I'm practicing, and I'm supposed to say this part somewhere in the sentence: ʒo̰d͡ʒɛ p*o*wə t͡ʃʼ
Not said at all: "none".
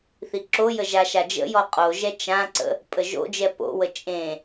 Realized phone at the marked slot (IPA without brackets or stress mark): o̰